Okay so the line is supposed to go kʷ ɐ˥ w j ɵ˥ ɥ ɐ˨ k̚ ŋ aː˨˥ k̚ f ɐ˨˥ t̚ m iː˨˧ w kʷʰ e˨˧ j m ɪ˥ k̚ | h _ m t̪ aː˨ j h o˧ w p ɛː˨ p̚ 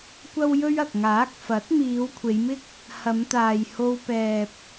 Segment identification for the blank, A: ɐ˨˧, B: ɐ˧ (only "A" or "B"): A